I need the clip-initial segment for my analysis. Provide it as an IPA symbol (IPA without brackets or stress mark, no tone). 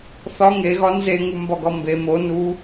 θ